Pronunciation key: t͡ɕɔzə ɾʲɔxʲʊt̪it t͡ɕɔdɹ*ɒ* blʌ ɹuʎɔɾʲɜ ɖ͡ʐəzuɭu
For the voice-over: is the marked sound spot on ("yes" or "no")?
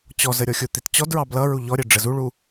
no